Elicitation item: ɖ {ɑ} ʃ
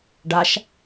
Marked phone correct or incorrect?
incorrect